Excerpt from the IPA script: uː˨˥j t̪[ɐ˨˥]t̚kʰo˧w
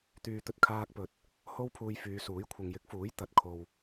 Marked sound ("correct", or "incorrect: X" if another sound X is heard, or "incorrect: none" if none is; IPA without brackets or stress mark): correct